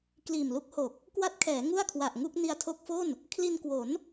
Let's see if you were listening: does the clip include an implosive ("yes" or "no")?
no